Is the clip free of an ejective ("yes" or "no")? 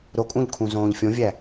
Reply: no